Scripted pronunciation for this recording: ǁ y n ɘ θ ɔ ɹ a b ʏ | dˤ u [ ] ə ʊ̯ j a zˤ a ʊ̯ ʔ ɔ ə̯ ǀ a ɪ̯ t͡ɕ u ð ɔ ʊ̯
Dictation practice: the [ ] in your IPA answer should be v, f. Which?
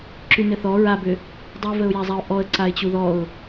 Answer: v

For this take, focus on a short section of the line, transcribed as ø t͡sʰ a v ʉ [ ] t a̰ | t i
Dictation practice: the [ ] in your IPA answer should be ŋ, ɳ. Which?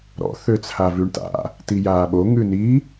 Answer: ɳ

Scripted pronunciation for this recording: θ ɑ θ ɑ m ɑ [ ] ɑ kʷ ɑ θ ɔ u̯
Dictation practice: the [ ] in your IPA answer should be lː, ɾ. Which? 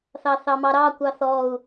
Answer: ɾ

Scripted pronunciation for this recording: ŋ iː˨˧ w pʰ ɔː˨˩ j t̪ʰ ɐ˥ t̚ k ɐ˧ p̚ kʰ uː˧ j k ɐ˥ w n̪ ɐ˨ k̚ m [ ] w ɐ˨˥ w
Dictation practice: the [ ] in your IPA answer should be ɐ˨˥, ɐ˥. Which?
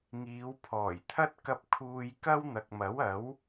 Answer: ɐ˨˥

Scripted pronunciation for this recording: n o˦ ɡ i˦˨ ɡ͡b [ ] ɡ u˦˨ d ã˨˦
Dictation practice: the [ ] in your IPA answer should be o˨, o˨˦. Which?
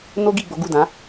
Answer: o˨˦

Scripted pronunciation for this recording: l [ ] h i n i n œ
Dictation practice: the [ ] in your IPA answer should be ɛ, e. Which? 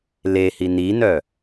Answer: e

